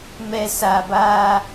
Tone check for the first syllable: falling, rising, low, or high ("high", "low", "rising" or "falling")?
high